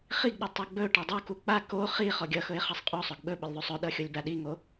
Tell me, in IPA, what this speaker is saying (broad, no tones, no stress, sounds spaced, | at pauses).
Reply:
χ i ɡ ɗ ʌ tˤ ɵ ɡ͡b ɵ ʈ ʌ dˤ o k u k͡p a k o χ i χ ɔ ɡʲ ʌ x ɵ ɪ̯ χ ʌ sˤ qʼ o sˤ ɵ ɡ ɓ ɵ ɓ ɵ lʲ ðˤ u sˤ ɵ ɗ ʌ xʲ o lʲ b a ɗ i ŋ o